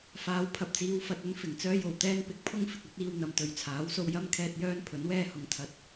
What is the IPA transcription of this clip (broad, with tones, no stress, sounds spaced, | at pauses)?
f aː˨˧ w pʰ ɐ˨ p̚ t͡s iː˨˧ w f ɐ˨ t̚ ɵ˥ n f ɪ˨˩ ŋ t͡s œː˥ j o˨ w t̪ ɛː˥ n p ɪ˨˥ k̚ pʰ ʊ˥ ŋ f ɪ˨ k̚ ɐ˨˥ t̚ iː˧ w n̪ ɐ˨ m t̪ ɵ˨ ɥ t͡sʰ aː˨˥ w s o˧ w j ɐ˥ m kʰ ɛː˧ t̚ j œː˥ n pʰ ɵ˨˥ n w ɛː˥ h ʊ˨˥ ŋ t̪ʰ ɐ˨ t̚